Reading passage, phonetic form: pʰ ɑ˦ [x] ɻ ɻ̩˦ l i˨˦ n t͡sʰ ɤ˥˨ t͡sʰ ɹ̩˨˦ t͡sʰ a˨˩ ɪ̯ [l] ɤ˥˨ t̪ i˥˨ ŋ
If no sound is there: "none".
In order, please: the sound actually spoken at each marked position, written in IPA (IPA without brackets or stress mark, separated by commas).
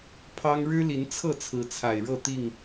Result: ŋ, ɻ